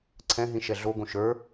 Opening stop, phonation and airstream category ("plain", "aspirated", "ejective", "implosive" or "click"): click